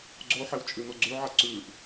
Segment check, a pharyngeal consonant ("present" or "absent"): present